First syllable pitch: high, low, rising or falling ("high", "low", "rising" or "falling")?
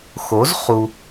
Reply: rising